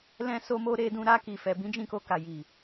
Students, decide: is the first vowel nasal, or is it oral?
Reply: nasal